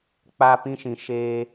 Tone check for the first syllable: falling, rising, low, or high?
high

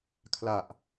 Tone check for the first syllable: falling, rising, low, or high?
low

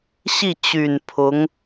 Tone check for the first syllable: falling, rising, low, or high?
falling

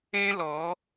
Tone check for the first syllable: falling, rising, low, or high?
high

